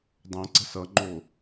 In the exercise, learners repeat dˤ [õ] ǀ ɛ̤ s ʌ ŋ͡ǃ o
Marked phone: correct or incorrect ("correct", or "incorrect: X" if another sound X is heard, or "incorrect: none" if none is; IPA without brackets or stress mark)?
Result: correct